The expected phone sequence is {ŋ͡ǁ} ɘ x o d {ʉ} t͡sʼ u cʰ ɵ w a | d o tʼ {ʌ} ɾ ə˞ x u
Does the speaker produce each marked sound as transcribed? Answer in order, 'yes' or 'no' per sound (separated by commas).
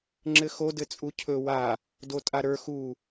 yes, no, no